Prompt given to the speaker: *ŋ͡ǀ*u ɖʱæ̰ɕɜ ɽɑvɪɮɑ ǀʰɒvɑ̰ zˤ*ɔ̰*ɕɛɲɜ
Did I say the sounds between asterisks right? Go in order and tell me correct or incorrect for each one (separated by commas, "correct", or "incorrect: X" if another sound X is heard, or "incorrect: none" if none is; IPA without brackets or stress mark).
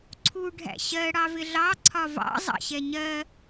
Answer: incorrect: ǀʰ, incorrect: ɑ̰